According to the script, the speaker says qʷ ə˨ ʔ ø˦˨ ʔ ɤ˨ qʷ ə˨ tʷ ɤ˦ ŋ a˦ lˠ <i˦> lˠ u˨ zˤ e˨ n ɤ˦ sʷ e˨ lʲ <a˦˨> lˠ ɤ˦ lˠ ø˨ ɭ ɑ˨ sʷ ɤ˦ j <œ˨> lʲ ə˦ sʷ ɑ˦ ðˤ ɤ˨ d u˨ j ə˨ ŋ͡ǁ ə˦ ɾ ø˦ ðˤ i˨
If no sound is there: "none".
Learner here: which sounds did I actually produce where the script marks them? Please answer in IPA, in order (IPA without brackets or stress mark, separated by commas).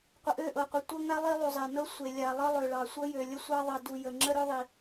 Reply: i˦, a˨, ø˨